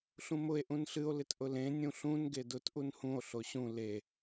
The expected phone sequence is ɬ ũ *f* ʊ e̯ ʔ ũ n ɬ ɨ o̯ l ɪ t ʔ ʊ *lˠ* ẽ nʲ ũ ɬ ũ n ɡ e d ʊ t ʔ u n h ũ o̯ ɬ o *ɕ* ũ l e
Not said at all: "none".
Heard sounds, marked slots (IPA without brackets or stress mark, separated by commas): m, l, ɕ